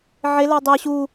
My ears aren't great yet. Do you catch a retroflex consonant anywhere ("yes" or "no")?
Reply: no